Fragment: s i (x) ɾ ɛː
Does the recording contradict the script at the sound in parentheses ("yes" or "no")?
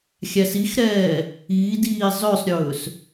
no